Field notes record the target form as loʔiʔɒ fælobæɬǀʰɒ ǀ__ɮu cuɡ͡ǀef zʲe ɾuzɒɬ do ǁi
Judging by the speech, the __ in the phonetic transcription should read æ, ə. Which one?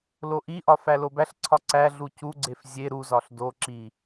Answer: æ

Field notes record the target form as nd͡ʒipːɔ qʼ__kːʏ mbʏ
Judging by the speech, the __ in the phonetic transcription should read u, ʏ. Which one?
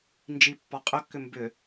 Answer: ʏ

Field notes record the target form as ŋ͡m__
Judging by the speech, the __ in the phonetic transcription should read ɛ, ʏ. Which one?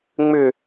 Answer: ʏ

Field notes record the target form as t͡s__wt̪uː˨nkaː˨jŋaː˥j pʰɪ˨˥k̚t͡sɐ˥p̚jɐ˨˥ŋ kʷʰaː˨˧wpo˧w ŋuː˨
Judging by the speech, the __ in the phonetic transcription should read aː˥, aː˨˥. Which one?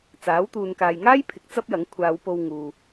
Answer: aː˨˥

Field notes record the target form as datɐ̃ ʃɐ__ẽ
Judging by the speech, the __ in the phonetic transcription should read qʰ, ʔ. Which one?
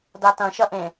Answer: ʔ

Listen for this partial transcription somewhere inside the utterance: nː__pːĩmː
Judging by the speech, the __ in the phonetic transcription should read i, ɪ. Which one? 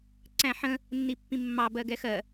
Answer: i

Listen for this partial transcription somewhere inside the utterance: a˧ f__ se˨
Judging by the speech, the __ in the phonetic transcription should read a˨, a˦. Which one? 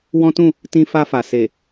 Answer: a˨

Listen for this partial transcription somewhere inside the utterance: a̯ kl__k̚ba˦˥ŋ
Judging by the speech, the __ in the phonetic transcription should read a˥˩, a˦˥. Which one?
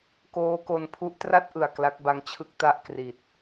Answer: a˦˥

